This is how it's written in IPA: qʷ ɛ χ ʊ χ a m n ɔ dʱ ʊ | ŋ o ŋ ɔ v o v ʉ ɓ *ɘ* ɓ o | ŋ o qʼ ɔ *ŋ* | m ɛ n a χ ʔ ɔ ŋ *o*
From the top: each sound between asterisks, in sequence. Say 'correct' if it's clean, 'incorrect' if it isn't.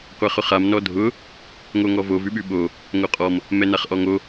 incorrect: ʉ, incorrect: m, correct

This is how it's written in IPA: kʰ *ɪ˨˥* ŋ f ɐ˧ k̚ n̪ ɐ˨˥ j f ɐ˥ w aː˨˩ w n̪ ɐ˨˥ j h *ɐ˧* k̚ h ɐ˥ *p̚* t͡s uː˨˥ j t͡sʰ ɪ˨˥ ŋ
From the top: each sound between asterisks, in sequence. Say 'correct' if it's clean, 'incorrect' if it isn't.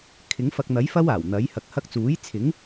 correct, incorrect: ɐ˨˥, incorrect: k̚

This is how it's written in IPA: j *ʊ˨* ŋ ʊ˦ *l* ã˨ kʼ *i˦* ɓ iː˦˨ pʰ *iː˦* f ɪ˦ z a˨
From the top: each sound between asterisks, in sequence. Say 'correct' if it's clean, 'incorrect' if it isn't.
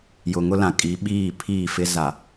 correct, correct, incorrect: i˨˦, incorrect: iː˦˨

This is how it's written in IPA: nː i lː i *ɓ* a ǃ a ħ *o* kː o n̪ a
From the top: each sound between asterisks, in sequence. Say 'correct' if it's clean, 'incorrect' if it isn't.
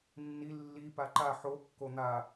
incorrect: p, correct

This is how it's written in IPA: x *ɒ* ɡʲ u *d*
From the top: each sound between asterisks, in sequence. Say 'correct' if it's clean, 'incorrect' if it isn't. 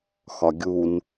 correct, incorrect: n

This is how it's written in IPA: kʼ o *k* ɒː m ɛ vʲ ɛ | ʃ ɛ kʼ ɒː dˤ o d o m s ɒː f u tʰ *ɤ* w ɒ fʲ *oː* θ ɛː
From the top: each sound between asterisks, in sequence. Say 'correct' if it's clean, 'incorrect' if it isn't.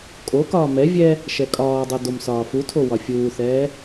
correct, incorrect: o, incorrect: uː

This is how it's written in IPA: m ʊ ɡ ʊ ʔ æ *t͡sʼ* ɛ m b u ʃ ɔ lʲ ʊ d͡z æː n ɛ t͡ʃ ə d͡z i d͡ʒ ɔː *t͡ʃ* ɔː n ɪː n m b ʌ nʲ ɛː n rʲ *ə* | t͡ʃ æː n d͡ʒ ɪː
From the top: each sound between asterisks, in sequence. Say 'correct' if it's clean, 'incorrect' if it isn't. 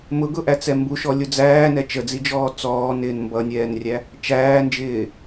incorrect: t͡s, incorrect: t͡s, incorrect: æ

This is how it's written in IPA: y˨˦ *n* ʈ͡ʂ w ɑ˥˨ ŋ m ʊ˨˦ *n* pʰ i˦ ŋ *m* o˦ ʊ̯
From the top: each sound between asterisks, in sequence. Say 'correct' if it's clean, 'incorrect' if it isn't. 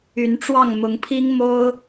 correct, incorrect: ŋ, correct

